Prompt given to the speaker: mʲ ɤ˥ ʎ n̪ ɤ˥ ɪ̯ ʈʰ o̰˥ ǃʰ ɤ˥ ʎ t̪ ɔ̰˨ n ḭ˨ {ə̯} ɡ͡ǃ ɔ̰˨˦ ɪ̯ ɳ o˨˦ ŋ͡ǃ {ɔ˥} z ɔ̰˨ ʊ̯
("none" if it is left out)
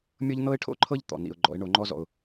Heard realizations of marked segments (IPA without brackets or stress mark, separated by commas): ʊ̯, ɔ˥